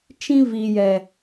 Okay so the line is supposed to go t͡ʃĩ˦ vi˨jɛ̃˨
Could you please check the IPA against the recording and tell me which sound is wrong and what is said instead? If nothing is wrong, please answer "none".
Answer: ɛ̃˨ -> ɛ˨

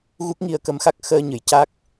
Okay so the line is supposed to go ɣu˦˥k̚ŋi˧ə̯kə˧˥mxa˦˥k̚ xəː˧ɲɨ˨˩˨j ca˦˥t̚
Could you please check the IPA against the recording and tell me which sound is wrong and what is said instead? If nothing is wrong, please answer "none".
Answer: t̚ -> k̚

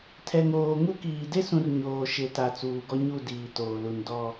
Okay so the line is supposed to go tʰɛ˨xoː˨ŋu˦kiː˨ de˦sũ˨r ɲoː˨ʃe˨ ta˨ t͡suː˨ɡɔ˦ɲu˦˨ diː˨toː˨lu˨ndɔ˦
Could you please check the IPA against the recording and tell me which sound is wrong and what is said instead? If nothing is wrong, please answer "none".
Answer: x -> ŋ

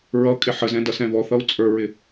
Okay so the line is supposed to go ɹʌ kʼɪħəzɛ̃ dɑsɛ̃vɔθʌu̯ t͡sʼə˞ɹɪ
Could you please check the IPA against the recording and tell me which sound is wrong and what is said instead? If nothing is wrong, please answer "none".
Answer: ɑ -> ʌ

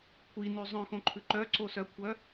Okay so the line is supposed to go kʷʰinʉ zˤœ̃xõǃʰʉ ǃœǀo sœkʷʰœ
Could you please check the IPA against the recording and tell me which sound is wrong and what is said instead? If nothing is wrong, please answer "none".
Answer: none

